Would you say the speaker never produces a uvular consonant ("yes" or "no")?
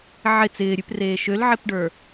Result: yes